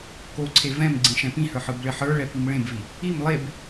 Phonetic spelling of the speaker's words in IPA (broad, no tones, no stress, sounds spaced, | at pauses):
k o ǀʰ e v ɛ̃ m ɡ͡ǀ ĩ ʃ ɛ̃ p ĩ h ə˞ ħ ɯ b ɭ ɪ ħ ə˞ ɭ ɛ p i m ɭ ẽ b v i | i m lˠ e b